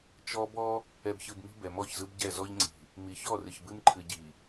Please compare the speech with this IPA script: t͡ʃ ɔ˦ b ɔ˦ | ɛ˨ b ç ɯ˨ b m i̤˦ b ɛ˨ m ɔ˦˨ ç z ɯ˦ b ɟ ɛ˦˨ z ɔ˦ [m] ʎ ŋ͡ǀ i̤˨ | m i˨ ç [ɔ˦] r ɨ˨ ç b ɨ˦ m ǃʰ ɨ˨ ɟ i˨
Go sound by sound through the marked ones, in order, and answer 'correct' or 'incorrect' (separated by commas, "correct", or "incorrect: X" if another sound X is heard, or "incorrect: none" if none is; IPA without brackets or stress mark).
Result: incorrect: none, incorrect: ɔ˦˨